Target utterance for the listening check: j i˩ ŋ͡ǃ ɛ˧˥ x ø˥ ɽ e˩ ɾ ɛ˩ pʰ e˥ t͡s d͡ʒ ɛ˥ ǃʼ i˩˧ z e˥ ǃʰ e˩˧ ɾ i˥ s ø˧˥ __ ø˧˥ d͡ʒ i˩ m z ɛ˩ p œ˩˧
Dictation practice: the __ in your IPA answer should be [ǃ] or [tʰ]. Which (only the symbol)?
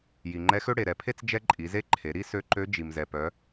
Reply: ǃ